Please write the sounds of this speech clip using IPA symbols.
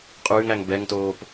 qʼ ʉː ŋ æ ŋ b ɛ ŋ t oː p

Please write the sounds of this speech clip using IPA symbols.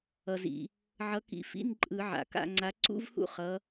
ʌ˩ z ḭ˩ | ʕ ʌ˨˦ k ḭ˨˦ f ḭ˧˥˧ n ǃʼ ɯ˧˩˧ ʕ a̰˩ k a̰˦˨ ŋ͡ǀ a˨˦ ǀ ṵ˧˥˧ v h ṵ˦˨ χ ʌ˨˦

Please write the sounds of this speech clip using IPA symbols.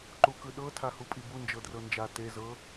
ǃ u k ɯ ɗ ɤ tʰ a h u pʼ i b u n d͡ʒ ɤ d r ɤ n d͡ʒ a t e z ɤ

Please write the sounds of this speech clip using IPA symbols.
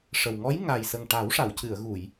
ʂ ə˨˩ w ŋ ɔ˧˥ j ŋ a˨˩ j s ə˨˩ ŋ ʈ a˨˩˦ w ʂ a˨˩˨ w c ɨ˨˩˨ ə̯ ɣ u˨˩˨ j

